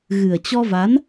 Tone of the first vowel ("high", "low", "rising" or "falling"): low